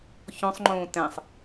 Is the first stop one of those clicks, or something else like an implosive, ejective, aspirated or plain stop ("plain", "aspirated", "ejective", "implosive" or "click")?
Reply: click